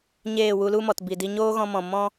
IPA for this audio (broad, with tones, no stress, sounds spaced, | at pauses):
ɲ eː˦˨ w u˧ l u˦ m ɔ˨ t b i˨ d i˧ ɲ oː˦ ɣ ɔ̃˧ m ɔ̃˨ m ɔ̃˦